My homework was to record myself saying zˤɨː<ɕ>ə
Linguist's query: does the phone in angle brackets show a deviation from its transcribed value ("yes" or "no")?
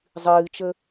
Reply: yes